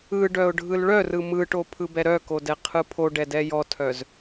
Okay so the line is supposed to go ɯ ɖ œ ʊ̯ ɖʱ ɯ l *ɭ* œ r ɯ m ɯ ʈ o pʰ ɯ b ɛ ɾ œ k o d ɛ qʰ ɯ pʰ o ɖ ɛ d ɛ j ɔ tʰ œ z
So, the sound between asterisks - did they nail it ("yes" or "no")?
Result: yes